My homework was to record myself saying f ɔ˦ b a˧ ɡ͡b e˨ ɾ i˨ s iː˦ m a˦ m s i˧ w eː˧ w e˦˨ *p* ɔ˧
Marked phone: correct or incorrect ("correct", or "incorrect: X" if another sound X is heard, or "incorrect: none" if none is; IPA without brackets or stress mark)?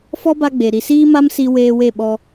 incorrect: ɓ